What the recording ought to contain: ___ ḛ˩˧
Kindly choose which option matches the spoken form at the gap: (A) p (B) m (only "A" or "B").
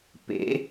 A